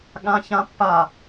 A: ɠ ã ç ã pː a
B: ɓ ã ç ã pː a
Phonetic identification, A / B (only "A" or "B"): A